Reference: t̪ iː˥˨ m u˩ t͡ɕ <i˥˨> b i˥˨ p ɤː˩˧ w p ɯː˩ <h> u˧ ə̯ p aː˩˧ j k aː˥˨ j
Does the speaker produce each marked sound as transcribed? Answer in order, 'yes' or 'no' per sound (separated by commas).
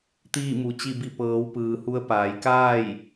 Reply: yes, yes